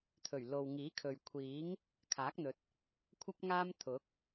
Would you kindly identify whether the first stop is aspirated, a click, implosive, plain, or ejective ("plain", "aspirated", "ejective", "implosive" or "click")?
aspirated